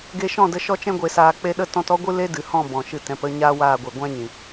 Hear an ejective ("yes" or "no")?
no